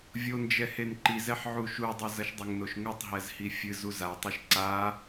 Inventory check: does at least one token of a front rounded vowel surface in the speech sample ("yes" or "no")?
no